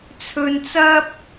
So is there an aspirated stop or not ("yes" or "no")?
yes